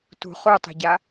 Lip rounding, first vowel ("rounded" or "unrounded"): rounded